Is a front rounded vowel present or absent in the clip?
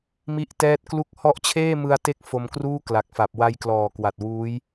absent